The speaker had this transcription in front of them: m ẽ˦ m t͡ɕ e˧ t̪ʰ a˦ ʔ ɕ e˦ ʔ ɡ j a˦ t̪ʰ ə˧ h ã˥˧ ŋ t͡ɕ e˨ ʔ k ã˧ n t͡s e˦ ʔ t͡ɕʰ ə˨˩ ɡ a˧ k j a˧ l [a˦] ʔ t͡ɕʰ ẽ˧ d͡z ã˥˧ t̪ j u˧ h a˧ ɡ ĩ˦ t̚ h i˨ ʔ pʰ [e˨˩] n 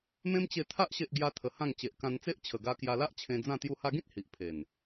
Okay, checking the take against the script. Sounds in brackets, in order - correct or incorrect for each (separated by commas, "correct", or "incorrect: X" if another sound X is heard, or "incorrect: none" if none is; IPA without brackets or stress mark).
correct, correct